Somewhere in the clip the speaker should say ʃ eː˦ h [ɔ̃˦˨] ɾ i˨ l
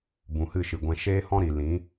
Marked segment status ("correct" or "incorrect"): incorrect